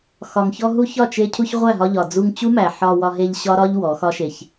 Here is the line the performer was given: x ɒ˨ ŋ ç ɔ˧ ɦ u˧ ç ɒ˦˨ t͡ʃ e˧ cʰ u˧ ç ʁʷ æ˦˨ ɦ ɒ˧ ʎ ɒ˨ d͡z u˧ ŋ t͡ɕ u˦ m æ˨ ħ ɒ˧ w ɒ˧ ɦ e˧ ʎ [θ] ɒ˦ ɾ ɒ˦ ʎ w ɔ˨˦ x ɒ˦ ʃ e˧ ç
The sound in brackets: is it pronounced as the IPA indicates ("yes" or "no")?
no